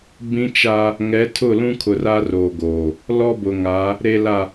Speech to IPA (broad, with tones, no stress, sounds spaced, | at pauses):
b ĩ˦ t͡ʃ a˦ | ŋ ɛ˨˦ tʰ ʊ˦˨ l ũ˦ kʰ ʊ˨ r a˦ r oː˨ ɡ oː˨ | l ɔ˦ b ʊ˨ ŋ a˨˦ | ɾ e˨ l a˨